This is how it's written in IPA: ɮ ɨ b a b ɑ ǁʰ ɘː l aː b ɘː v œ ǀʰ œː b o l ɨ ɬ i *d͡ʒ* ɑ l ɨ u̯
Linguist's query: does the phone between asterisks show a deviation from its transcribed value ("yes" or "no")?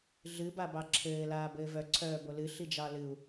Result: no